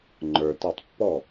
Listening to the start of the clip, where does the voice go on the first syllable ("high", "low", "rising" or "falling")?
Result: low